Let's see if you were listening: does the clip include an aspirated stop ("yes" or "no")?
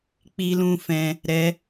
no